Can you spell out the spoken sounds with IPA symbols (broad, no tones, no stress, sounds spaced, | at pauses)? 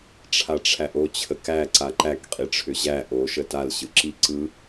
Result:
ʈ͡ʂʰ a ʈ͡ʂʰ æ ʔ o t͡ɕʰ ə k æ ǀ a ǃ æ k qʼ i ʈ͡ʂʰ ʏ ʑ æ ʔ o ʃ ə t a l ɕ ɯ ǁ i ǀ ɯ